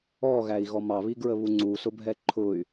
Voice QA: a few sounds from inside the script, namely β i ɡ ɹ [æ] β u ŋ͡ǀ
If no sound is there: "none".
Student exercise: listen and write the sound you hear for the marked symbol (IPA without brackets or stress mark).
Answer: ə